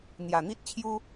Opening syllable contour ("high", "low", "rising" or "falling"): low